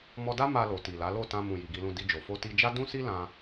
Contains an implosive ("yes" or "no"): no